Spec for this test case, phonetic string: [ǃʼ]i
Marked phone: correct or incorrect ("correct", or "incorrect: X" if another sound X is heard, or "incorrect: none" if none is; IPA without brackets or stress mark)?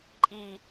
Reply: correct